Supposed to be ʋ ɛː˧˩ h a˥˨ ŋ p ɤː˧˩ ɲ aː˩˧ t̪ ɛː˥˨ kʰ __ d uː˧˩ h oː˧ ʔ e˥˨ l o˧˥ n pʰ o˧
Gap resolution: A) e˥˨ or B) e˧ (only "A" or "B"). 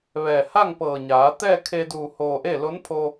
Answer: B